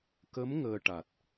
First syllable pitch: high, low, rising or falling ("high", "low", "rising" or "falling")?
rising